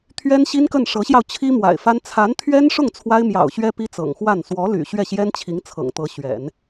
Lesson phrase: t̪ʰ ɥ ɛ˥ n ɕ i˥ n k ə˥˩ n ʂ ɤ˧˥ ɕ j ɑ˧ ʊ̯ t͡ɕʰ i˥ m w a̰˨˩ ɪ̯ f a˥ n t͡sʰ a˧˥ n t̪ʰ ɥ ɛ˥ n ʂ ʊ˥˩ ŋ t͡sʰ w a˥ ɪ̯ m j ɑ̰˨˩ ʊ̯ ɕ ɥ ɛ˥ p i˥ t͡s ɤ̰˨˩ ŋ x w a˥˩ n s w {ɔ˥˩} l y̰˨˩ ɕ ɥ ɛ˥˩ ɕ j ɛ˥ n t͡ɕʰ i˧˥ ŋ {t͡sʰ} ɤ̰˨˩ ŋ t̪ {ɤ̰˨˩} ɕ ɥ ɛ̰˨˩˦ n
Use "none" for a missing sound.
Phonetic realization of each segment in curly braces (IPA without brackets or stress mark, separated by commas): ɔ˧˥, t͡sʰ, ɤ˧˥